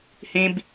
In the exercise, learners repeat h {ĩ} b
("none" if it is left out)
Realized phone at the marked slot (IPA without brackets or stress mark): ĩ